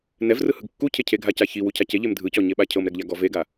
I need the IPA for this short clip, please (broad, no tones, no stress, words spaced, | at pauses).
nɛvrɯhɯɡ kːucʰe cʰeɡʱaca çiwucʰa ceʎem dʱɯcɔɲeɓa cʰɤmɾɛɡʎaɡɔ veɡa